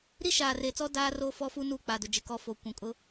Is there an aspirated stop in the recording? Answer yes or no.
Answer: no